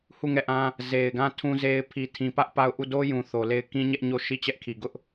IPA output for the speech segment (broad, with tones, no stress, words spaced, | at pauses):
hu˦˨ŋɛ˦˨ʔã˦ | ze˨ɪ̯ɡã˦˨ tʰũ˦ze˦ɪ̯ pʰi˨tʰĩ˨pä˦ʔ pa˦˨ʊ̯ ʔu˦˨ do˦jũ˨ θo˨le˦˨ɪ̯ kĩ˦ɲɛ˦ʔɲo˦˨ ʃi˦˨t͡ɕɛ˦ʔkʰi˨ ɡʊ˦ʔ